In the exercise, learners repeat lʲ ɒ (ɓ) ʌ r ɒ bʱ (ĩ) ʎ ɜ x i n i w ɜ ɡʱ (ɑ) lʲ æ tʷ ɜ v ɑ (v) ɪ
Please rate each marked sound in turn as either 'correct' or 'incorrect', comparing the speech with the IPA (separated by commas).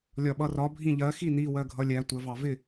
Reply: correct, correct, incorrect, correct